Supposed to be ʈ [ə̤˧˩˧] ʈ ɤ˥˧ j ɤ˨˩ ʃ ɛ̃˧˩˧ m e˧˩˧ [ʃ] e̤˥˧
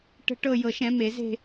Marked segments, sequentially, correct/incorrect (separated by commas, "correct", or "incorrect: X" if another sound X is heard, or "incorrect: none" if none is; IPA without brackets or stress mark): incorrect: ə̤˥˧, incorrect: z